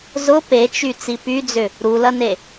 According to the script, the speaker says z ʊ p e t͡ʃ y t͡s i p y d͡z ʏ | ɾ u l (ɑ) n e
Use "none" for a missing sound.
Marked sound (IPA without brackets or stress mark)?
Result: ɐ